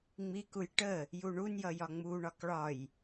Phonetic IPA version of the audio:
ŋ͡m i k u j ʈ ə | j u ɳ u n j ʌ j ɒ ŋ͡m u ɳ ɒ k ɭ ɒ j

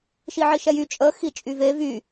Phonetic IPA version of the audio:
ʃ i ʕ i ʃ ɛ j y t͡ʃʼ ə x i t͡ʃʼ y v e v y

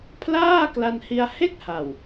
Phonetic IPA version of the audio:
pʰ l aː˥˩ k l a˧ n h i˧ a̯ h e˥˩ k̚ h a˨˩ w

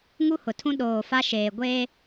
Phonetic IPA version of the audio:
ŋ u˦ h ʊ˨ tʰ ũ˦ ɗ oː˨ f a˦ ʃ eː˨ ɡʷ eː˦

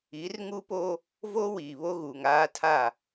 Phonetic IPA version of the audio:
i˨˦ r ŋ u˦ p o˦ | v o˦ w iː˨ β o˦ ɣ uː˨ ŋ aː˦ tʰ a˦˨

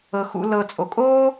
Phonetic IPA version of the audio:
ɤ˩ x ṵ˨ l ɤ˨ t͡sʼ o˩ kʼ oː˥

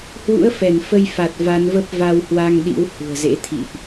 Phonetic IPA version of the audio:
h w ṵ˧˥ ə̯ f ɛ˧˩ n f ə˧ j f a˨˩ t̚ v a˨˦ n v ə˦˥ p̚ v a˧ w h w a˧ ŋ ɗ ḭ˧˥ w h ṳ˨˩ ə̯ z ḛ˧˥ t̪ʰ ḭ˧˨ ʔ

